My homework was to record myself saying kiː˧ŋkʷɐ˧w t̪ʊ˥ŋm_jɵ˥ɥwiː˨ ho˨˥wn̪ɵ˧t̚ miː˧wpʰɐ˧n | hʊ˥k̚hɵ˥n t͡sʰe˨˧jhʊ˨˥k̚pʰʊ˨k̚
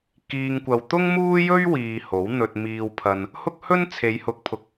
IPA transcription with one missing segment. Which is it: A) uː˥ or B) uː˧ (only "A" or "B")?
A